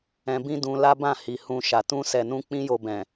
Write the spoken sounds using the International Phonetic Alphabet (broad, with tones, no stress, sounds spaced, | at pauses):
ɛ̃˧ b ĩ˦ d ũ˧ l a˦ b ã˦˨ h i˨ h ũ˧ ʃ a˨ t ũ˧ s ɛ˨ n ũ˧ k͡p ĩ˦ j o˧ b ɛ̃˨